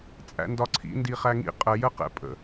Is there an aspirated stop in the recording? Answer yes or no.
yes